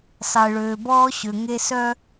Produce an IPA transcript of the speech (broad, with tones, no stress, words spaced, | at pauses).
sˤe˨ɭøː˨bɔː˦ ɕø˨ŋe˦sœ˦